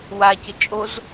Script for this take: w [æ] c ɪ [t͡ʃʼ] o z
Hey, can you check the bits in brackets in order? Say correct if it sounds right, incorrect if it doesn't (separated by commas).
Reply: incorrect, correct